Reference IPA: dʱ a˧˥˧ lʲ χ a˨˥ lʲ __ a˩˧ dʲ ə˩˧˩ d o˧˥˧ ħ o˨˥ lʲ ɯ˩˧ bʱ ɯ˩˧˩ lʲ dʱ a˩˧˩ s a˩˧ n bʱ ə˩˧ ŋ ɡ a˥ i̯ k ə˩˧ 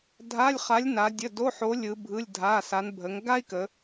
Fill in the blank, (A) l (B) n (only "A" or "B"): B